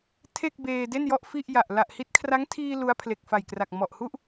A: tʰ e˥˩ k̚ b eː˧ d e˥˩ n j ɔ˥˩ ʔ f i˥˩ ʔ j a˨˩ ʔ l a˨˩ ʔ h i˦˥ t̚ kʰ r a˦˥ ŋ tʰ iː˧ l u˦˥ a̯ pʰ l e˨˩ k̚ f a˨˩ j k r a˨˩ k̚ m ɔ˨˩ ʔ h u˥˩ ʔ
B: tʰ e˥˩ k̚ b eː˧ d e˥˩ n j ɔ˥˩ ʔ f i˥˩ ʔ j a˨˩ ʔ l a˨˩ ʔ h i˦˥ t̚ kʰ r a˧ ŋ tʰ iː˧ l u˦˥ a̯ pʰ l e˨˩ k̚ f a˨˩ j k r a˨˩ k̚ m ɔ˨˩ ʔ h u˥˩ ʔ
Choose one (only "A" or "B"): A